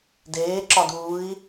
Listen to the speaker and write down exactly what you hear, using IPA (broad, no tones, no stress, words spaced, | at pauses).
deːǁɒd uːi̯